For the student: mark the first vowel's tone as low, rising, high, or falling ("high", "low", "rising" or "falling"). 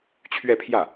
falling